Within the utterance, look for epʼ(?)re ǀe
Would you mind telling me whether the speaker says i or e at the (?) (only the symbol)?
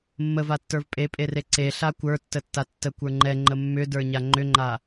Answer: e